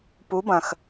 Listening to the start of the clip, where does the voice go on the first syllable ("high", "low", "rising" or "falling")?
rising